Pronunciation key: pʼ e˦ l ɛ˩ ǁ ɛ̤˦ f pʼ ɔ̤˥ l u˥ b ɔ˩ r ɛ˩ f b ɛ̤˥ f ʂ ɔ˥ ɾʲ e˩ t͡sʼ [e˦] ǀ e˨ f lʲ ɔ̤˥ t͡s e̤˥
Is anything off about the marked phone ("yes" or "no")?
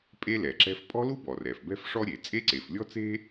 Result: yes